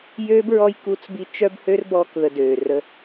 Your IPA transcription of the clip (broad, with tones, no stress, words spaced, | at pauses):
jøː˦b ɹɔ˦j ku˦t͡sbi˦ t͡ʃœ˦bhø˦rbɔː˧kðə˨ døː˨rə˦